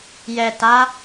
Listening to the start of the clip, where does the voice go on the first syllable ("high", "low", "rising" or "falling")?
low